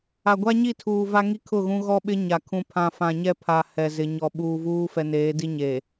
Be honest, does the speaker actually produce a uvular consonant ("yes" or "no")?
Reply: no